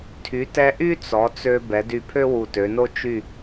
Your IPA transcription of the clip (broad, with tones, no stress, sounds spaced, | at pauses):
tʰ y˩˧ t ɛ˧ ʔ y˥ t͡s ɔ˩˧ t͡s ø˧ b ɛ˩˧ d y˧˩ pʰ ø˥ w u˧˩ t ø˩˧ n o˥ t͡ʃ y˥˧